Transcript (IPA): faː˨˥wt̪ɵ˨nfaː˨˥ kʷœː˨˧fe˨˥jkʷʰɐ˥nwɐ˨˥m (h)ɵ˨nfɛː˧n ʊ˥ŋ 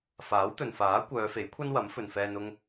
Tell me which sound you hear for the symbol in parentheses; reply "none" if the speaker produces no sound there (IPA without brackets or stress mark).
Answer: f